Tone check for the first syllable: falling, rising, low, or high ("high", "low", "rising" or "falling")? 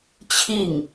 falling